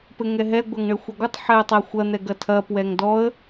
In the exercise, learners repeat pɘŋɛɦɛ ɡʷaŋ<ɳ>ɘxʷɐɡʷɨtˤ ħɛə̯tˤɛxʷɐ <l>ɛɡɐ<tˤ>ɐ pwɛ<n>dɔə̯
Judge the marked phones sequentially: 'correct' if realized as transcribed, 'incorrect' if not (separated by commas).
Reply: correct, incorrect, incorrect, incorrect